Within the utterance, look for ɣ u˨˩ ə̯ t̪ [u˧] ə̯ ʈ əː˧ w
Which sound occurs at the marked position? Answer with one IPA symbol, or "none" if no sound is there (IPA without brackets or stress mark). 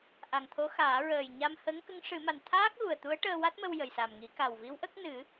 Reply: u˧˥